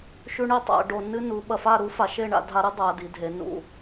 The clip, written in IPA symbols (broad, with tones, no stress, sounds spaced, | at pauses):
ʃ ʉ˥ ɳ i˥ tˤ a̰˩˧ ɖ o˧ nː ɨ˥ n u˩˧ ɓ ɐ˧˩ f a˥˧ ɾ u˥ f a˩˧ ʃ e˥˧ ɳ a̰˧ dʱ a˧ ɾ ɨ˥ dˤ a˩˧ d i˩˧ dʱ e˩˧ n ṵ˧˩